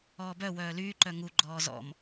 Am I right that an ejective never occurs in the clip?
yes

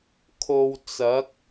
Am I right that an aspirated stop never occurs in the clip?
no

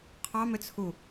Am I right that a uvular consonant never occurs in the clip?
no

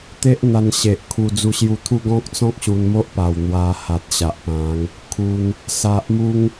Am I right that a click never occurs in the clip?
yes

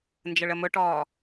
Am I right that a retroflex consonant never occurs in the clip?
no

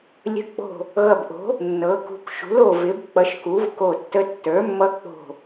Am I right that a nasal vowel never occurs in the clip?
yes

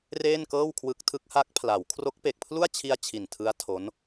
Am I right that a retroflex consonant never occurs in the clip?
yes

